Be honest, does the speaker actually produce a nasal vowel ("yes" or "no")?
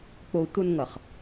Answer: no